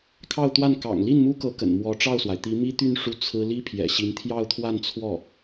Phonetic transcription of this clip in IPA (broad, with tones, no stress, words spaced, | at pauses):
kʰɑ˥˧ʊ̯t̪wa˥˩n kɑ̰˨˩ŋli˥˩nmu˥kɤ˧˥ kə̰˨˩nmwɔ˧˥ʈ͡ʂɑ˥˩ʊ̯swa˩ɪ̯ t̪i˧˥mi˥t̪y˥˧n ʂu˥˩ t͡sʰɹ̩˥ li˥pʰjɛ̰˨˩ɕi˧˥n t̪ʰjɑ˥˧ʊ̯t̪ʰwa˥˧nt͡sʰwɔ˥˩